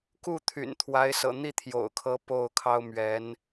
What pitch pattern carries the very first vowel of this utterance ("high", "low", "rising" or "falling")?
falling